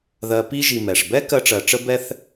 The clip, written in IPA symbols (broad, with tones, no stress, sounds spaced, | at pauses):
ð ɜ˧ p i˥ ʒ i˧ m ɛ˩ ʂ b ɛ˥ k ɜ˥ ʈ͡ʂ ɜ˧ ʈ͡ʂ ə˥ b ɛ˥ θ